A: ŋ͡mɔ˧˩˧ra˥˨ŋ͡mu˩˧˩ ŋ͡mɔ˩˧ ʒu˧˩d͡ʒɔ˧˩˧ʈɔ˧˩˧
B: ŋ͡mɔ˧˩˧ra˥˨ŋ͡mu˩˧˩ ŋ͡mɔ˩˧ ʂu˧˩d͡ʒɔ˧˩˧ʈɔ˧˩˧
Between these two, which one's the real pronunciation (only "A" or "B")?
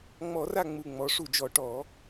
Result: B